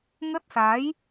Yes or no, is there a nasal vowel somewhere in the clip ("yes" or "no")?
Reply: no